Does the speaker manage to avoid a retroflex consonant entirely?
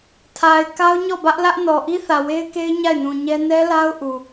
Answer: yes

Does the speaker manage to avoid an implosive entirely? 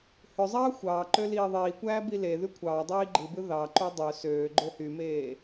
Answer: yes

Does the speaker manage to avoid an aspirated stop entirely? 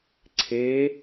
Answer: no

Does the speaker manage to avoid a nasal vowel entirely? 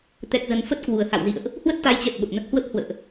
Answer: yes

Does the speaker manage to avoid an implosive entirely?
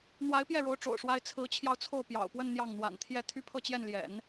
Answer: yes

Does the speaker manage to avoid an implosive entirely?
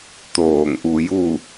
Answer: yes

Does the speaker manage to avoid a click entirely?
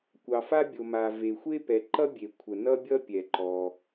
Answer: no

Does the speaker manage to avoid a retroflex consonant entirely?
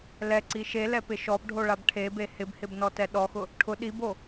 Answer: no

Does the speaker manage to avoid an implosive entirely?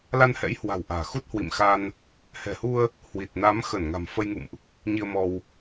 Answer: yes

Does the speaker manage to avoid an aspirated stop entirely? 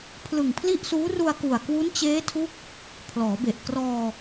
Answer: no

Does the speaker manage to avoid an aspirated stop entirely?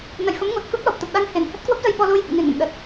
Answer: yes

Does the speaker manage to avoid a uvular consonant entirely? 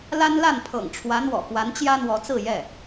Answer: yes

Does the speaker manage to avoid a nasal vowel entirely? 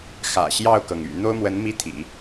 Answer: yes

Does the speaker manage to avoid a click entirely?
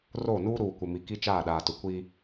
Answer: yes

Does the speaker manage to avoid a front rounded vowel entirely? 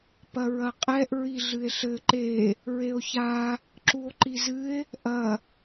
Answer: yes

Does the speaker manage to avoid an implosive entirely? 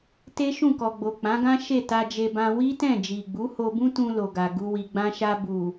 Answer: yes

